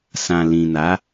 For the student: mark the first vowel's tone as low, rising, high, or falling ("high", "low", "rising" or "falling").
low